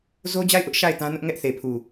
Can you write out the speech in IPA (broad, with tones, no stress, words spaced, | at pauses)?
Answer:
zo˦d͡ʑa˦˨ɪ̯ʔʊ˦ʔ ʃa˦˨ɪ̯ tã˦nʊ˦ʔ ŋɛ˦ʔθe˨pʰu˨